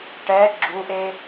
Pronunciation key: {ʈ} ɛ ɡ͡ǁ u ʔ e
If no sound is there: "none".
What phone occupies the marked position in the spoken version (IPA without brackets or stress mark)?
ʈ